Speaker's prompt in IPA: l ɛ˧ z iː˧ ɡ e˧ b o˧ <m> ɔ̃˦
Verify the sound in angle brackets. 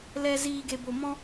correct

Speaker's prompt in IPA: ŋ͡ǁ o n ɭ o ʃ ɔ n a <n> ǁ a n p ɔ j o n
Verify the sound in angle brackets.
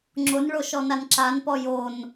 correct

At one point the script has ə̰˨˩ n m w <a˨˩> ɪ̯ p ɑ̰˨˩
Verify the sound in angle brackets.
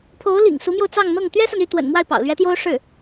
incorrect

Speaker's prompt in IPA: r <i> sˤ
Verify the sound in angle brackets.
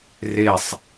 incorrect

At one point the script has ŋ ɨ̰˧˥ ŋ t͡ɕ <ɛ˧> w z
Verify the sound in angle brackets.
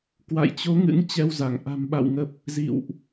correct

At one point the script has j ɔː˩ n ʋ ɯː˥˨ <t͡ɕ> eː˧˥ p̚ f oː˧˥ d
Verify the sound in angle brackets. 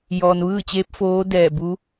correct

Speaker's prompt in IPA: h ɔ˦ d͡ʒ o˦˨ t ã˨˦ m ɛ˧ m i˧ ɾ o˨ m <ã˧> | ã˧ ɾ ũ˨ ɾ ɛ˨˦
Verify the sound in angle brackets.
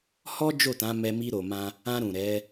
correct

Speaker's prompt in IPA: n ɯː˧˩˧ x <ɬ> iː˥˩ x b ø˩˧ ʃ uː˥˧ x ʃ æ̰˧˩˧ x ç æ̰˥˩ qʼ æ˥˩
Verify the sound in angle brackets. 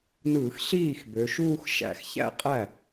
correct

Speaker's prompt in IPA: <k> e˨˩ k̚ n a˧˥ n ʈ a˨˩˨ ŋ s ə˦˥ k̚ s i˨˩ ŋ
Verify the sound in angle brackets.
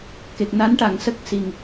correct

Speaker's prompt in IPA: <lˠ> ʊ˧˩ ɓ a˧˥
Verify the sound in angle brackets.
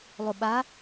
correct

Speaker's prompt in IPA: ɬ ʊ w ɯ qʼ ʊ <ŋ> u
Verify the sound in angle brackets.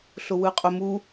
incorrect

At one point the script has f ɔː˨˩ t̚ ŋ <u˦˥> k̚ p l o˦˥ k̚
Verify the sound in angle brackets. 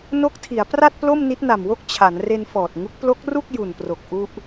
correct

